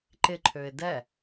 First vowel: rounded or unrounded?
unrounded